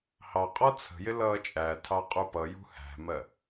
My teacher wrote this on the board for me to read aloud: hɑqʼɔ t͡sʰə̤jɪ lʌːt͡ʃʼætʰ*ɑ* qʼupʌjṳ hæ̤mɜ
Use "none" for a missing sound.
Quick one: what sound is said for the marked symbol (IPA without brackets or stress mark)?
ɑ